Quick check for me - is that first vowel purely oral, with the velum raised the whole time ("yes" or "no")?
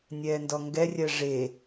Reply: yes